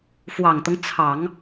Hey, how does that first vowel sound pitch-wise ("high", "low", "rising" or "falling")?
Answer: low